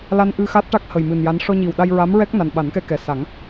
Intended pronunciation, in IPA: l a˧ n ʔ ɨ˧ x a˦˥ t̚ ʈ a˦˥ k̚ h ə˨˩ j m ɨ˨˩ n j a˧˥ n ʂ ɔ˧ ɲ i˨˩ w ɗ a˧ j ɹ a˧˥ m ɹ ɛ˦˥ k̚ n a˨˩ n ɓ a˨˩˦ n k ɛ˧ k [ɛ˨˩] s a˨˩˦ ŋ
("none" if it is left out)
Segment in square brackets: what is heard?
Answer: ɛ˨˩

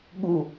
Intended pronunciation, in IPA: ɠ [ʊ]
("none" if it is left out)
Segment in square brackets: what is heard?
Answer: u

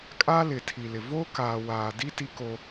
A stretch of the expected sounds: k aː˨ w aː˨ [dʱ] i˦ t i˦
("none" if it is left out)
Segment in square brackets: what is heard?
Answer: d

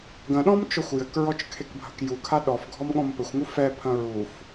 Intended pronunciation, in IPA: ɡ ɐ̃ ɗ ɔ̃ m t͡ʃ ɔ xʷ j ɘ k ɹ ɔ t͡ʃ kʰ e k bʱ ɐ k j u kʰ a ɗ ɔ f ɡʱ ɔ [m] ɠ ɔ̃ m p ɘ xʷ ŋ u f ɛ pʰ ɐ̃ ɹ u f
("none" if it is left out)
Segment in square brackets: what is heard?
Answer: m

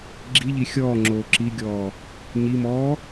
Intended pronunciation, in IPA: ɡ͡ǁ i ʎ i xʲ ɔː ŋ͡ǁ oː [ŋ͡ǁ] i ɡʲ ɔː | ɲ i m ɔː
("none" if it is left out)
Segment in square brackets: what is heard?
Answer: ǁ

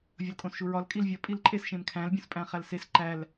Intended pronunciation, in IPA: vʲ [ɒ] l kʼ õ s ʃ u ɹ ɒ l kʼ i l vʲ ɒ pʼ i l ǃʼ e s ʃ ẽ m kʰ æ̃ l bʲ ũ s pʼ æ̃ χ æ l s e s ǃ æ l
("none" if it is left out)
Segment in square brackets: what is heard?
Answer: ɒ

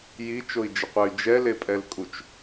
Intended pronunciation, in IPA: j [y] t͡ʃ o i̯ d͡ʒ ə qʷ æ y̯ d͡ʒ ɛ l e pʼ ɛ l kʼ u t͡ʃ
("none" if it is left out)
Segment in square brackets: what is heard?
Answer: i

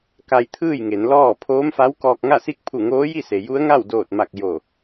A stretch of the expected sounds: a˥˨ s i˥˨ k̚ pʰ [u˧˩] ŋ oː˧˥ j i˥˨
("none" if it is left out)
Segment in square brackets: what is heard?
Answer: u˧˩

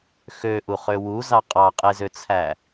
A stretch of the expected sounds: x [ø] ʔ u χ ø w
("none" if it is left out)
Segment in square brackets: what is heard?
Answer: ø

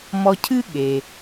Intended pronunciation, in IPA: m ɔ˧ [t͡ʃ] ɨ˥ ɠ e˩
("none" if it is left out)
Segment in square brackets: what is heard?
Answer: cʰ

